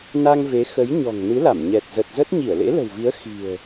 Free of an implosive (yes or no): yes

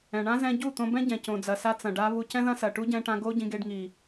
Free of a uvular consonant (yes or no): yes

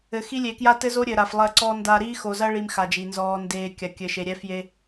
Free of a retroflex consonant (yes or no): no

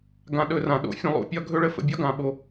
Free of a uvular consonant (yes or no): yes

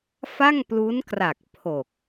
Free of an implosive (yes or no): yes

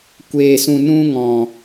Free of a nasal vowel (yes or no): no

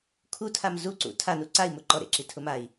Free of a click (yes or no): no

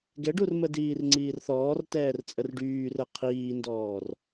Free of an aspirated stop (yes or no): no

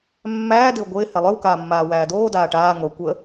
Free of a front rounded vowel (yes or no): no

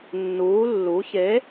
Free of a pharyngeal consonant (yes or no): yes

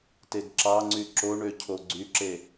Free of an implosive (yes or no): yes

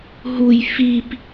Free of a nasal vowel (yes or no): yes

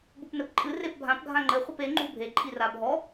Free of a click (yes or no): no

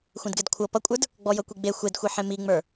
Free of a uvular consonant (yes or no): yes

